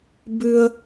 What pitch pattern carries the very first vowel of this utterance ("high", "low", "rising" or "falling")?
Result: high